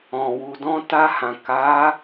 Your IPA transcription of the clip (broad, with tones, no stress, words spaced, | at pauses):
ɔ̃˨wu˨ dɔ̃˧ta˧hã˨ka˨˦